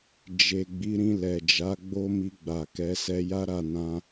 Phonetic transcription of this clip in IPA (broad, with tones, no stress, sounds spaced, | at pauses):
d͡ʒ e˨ ɡ͡b i˨˦ ɾ ĩ˧ l ɛ˨ d͡ʒ a˨˦ ɡ͡b o˦ m i˧ ɡ͡b a˨ k ɛ˨˦ s ɛ˧ j a˦ ɾ a˦˨ n ã˧